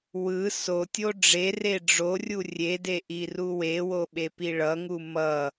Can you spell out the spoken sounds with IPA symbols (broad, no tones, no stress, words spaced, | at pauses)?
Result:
wɯ sotʲo ɖ͡ʐere ɖ͡ʐorʲu rʲede ʔiruwewo ɓepiɭʌŋu mʌ